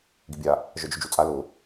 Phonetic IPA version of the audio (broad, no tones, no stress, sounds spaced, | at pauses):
ɡ i bʲ a | ʒ œ d͡ʒ ʊ d͡ʒ u t͡sʼ a l ʊ